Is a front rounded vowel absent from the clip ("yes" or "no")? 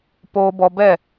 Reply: yes